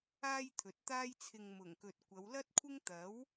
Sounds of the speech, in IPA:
aː˥ j t̪ʰ ɵ˨ t̚ t̪ aː˥ j t͡sʰ ɪ˧ ŋ m ʊ˨˩ ŋ k ɵ˨ t̚ kʷ ɐ˨˧ w l ɐ˥ t̚ kʷʰ ɪ˥ ŋ t̪ ɐ˨˥ w

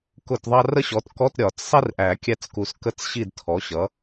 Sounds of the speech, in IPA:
k ʊ˦˨ t ðˤ ɑ˥ r ə˥ ɕ ɔ˩˥ t k ɔ˧˥˧ t ɾʲ ɒ˨˩˦ t͡s sˤ i˥ r ʔ æ˨˩˦ kʲ æ˦˨ t͡s k u˨˩˦ s k ə˧˥˧ t͡s ɕ i˦˨ d tʰ ɔ˩˥ ɕ ʌ˩˥

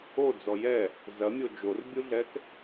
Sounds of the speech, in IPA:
o d͡z ɔ j ɛ | z ɐ mʲ o d͡ʒ o r bʲ u ɮ ɛ k

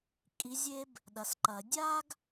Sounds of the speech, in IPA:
kʼ i˨˦ zʲ e˦ b | ɗ ɐ˨ s ǃ ɐ˨˩˦ dʲ a˦ ɡ

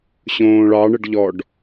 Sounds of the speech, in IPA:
ɕ õː ɭ ɑ ɳ ə ɖ ʎ ɔ ɖ

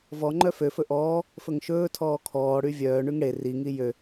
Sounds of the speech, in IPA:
v ɔ ŋ͡ǃ œ f ø f ɵ ʔ ɔː | f ɵ ŋ ʃ ɵː tʰ ɔː kʰ ɔː ɽ y vʲ œː ɳ y ŋ ɽ e r i ŋ i j ø

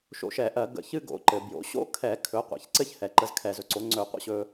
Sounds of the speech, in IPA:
ʃ o̰˧ ʃ ɛ˧˩˧ ʔ ɜ˧˩˧ ɡ ə̰˧ ç ɨ˥ ɡ o̰˩˥ ǃ ɘ˩ b j o̰˩˥ ɕ o̰˥ kʰ ɛ˧˩˧ kʰ ɵ˩˥ qʷ ɛ̰˩ ç ǀ ɘ˥ ç h ɛ˩ ǃ ə˧ z kʰ ɛ˧˩˧ z ɵ˩ ǀ o˩˥ ŋ͡ǀ ɵ˧˩˧ qʷ ə̰˥ ɕ ɵ˧

